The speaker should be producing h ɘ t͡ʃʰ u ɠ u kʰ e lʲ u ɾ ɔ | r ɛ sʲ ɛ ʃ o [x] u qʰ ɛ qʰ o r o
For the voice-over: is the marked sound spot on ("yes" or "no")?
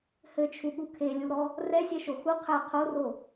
yes